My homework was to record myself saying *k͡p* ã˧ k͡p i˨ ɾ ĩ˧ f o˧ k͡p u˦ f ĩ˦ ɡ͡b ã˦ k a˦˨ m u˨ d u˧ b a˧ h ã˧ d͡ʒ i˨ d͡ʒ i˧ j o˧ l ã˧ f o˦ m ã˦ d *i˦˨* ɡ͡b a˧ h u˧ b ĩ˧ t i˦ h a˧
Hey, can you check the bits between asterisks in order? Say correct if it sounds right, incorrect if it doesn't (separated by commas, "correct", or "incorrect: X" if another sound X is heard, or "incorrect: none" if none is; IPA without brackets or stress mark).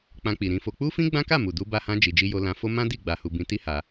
correct, correct